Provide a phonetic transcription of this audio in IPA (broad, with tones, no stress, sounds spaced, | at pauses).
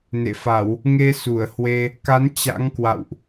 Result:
n ḛ˧˨ f a˧˩˨ w | ŋ e˧ s u˧˩ ə̯ h w e˧ | k a˨˦ n t͡ɕ a̰˧˥ ŋ k w a̰˧˨ w ʔ